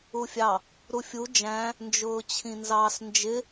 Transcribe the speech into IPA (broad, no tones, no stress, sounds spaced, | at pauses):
u fʲ ɑ | ɾ u fʲ u d͡ʒ æ̃ | n d͡ʒ ʊː t͡ɕʰ ĩ n z ɑ s n d͡ʒ ɪ